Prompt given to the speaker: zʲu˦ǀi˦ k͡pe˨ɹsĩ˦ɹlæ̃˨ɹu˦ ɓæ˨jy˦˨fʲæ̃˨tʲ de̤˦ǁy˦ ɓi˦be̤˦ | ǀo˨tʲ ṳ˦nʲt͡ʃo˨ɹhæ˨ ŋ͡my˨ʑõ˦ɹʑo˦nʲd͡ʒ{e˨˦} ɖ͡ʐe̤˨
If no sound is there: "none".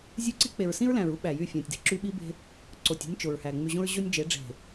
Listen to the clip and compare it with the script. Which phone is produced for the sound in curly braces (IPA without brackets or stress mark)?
e˨˦